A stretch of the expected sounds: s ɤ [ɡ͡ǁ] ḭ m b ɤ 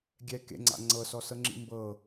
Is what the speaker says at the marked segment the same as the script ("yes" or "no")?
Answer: no